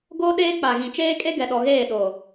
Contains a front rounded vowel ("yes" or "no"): no